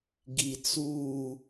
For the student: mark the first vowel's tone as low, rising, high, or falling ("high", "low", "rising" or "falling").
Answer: low